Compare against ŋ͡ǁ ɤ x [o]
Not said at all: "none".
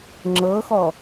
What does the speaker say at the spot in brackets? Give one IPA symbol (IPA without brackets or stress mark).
ɔ